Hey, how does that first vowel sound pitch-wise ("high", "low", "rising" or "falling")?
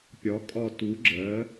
rising